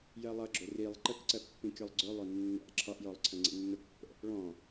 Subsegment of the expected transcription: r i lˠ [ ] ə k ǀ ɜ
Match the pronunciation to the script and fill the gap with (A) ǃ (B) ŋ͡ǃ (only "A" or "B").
A